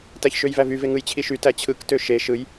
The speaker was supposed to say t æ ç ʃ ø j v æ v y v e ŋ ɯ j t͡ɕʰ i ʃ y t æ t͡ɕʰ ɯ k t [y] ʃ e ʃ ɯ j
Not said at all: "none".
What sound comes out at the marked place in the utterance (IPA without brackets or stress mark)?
ø